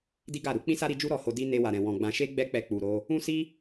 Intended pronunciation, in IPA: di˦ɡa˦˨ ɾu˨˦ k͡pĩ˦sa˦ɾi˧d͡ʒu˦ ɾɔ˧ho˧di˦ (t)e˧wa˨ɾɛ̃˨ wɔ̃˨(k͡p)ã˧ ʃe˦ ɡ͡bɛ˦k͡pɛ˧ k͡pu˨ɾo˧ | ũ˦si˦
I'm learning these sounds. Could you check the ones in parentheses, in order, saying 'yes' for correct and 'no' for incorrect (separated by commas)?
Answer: no, no